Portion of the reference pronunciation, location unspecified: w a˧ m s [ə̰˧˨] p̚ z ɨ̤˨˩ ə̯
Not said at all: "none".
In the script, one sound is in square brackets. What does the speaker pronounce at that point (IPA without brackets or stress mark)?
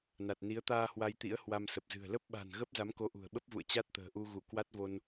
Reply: ə˨˩